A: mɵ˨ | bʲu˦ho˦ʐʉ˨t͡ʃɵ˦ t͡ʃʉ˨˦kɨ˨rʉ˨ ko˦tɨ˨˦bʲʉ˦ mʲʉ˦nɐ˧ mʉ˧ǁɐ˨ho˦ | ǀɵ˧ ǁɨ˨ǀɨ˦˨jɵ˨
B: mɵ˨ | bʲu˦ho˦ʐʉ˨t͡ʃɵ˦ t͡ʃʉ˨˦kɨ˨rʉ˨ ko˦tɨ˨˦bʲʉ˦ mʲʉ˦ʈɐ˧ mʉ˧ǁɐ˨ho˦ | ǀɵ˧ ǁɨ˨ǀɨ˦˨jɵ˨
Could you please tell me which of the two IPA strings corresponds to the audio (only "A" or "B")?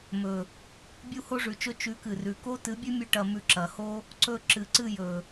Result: B